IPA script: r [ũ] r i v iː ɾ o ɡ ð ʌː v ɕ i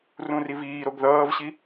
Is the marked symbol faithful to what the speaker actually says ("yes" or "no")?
yes